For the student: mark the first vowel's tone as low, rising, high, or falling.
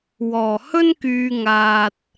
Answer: low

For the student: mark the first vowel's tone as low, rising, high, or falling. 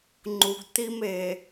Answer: low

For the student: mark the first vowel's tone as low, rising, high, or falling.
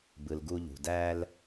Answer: low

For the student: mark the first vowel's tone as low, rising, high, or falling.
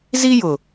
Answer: high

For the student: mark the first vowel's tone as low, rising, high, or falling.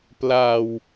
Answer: low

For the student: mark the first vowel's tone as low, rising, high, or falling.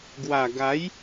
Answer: low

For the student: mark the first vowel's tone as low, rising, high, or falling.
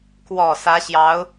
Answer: low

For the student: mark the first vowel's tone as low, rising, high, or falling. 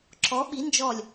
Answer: rising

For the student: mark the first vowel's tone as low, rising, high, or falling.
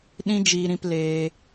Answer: high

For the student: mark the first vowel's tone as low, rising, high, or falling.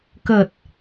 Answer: low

